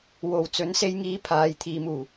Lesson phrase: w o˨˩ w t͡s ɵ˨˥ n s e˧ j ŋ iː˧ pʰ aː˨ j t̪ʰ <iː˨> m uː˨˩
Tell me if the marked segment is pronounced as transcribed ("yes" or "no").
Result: yes